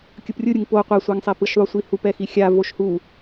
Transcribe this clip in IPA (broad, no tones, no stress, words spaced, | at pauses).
kʲɯprʲɯɾʲɯŋ po qʷasʷaŋsˤe pɯʃðˤosʷihup ɛxixʲa voʃhu